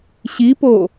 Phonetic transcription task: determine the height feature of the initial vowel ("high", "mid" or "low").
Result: high